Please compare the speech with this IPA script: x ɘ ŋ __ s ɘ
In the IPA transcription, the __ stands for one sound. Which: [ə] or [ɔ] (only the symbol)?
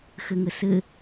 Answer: ə